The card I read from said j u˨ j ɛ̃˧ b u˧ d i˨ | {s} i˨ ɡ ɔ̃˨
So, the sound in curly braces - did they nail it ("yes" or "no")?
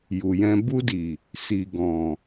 yes